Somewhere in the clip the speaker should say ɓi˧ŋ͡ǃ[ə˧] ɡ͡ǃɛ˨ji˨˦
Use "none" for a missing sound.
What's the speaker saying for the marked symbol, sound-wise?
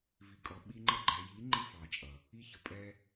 ə˧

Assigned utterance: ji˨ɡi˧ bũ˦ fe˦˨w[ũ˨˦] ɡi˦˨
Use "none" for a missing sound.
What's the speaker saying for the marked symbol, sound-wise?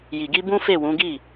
ũ˨˦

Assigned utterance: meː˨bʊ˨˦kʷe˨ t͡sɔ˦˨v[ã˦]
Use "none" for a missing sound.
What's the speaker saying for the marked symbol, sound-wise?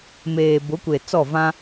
ã˦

